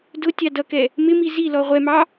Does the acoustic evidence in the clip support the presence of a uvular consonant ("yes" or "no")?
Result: yes